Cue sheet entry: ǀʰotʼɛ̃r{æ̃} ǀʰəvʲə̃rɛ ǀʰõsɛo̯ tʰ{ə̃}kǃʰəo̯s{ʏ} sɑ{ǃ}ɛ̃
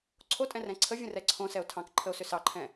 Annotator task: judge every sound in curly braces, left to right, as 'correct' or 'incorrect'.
incorrect: ɛ̃, incorrect: ɑ̃, correct, incorrect: ǃʰ

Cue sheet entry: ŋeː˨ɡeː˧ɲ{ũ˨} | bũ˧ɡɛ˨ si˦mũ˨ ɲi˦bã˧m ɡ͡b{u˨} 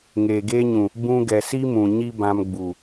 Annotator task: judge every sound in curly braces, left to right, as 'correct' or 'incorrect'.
correct, correct

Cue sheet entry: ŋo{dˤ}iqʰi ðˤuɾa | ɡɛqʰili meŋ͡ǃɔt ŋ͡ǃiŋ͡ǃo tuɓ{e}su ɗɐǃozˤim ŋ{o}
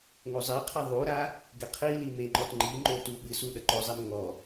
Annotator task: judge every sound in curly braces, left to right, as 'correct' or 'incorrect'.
incorrect: zˤ, incorrect: ɨ, incorrect: ɔ

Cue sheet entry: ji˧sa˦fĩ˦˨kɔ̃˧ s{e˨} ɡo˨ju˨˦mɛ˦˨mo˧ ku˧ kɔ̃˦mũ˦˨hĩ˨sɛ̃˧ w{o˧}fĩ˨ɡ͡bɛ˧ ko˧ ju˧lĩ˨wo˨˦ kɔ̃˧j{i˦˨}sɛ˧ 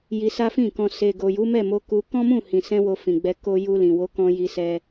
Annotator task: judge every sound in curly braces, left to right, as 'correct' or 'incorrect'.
correct, correct, incorrect: i˧

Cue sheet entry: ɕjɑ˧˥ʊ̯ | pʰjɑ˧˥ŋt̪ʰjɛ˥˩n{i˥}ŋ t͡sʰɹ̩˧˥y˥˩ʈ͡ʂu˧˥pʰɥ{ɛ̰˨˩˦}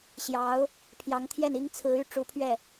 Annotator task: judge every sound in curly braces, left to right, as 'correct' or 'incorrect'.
correct, incorrect: ɛ˥˩

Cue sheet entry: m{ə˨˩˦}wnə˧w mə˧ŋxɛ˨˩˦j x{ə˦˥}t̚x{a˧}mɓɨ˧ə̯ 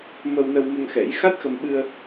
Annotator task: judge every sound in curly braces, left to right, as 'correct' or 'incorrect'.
incorrect: ə˧, incorrect: a˦˥, incorrect: ə˧

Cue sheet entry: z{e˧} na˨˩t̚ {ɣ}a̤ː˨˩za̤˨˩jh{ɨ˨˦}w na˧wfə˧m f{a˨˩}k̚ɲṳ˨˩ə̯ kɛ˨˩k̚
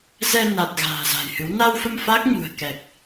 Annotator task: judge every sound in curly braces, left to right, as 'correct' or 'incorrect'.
incorrect: ɛ˧, correct, correct, incorrect: a˦˥

